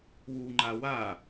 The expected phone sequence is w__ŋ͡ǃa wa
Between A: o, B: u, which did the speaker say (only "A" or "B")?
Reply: B